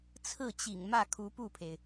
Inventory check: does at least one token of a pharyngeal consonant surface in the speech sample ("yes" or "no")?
no